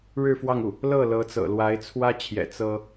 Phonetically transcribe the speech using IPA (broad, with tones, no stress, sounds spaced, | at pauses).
ɻ ɻ̩˥˧ f w ɑ˥˧ ŋ u˥˩ | l ɤ˥˩ l ɤ˧˥ t͡s ɤ̰˨˩ l w a˧˥ ɪ̯ t͡sʰ w ä˥ t͡ɕʰ j ɛ̰˨˩ t͡s ɤ˥